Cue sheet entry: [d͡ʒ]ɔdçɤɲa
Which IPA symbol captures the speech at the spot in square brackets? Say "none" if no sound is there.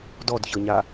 d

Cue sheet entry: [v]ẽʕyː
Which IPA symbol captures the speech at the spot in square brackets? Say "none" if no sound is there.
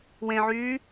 w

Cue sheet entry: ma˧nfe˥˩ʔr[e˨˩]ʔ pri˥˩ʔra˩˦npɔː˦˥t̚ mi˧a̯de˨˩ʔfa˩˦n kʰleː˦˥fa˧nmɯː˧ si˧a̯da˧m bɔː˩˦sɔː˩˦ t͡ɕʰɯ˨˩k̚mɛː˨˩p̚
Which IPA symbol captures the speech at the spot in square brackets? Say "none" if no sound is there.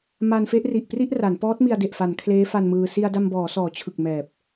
i˨˩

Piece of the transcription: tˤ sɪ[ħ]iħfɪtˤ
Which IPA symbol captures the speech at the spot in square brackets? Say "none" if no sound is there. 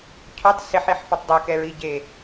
ħ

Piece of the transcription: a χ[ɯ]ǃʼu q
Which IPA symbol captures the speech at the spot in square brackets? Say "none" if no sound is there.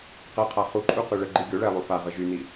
u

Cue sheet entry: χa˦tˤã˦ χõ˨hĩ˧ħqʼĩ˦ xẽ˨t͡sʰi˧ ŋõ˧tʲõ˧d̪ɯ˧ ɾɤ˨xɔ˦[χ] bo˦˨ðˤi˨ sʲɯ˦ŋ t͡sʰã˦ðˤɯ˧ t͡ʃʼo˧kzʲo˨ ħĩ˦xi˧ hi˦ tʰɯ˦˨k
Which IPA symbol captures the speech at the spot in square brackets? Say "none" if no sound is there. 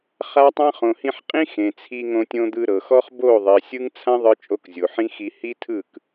χ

